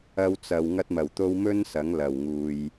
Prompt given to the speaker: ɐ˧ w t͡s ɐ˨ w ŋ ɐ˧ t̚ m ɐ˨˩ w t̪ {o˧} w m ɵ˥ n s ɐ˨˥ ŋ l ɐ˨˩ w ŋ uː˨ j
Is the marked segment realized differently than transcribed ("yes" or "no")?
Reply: no